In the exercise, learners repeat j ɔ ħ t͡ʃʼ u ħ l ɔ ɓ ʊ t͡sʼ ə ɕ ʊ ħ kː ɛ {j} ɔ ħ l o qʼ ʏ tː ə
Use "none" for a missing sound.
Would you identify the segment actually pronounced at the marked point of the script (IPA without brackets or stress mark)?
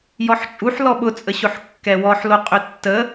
w